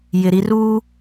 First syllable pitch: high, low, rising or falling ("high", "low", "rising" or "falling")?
low